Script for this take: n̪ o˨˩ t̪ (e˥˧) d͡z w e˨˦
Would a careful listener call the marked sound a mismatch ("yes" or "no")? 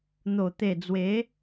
yes